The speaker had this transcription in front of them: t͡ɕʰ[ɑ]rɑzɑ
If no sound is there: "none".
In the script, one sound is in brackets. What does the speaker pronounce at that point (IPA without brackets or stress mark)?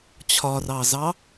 ɒ